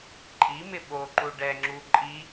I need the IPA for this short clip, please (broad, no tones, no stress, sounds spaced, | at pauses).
ǃʼ i m ɪ ɓ o ǃ u ɖ ɛ ŋ͡ǁ u ǃʼ i